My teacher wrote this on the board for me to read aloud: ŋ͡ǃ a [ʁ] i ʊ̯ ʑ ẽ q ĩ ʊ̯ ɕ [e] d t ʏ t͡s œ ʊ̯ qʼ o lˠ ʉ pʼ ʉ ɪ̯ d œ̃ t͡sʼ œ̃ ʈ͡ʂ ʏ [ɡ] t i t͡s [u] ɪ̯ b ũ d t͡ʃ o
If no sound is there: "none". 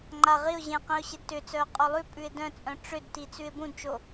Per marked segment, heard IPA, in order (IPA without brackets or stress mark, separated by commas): ʁ, e, d, ʉ